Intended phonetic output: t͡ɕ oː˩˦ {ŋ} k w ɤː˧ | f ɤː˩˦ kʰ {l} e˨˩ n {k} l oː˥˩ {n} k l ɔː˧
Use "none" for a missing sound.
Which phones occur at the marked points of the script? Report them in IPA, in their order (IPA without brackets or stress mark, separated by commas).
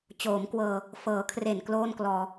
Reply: m, r, k, n